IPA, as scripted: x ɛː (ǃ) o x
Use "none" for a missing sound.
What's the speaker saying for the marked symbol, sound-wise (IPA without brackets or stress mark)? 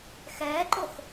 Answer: ǃ